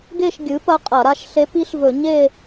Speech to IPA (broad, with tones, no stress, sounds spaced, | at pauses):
ɡ e˦˨ ʃ ɡʲ ɨ˩˥ p ɐ˧˥ qʼ ɐ˧˩˧ ɾ a˦˨ ʃ ɬ e˧˥ p i˧˥ ɬ v ɵ˧˩˧ ɲ e˦˨